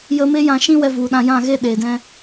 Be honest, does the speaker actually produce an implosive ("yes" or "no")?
yes